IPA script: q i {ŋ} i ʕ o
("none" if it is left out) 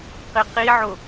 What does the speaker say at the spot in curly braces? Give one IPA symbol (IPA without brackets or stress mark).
q